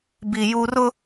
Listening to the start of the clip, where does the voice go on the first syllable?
high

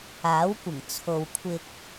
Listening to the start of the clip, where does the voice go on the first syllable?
rising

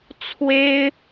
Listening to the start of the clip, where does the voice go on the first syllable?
high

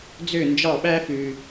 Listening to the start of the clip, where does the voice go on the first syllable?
falling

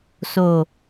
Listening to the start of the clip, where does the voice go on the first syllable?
low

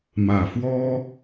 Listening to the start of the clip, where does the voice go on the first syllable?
low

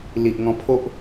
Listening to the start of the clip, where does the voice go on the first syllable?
low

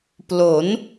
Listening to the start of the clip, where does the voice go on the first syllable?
rising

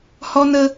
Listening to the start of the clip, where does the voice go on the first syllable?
high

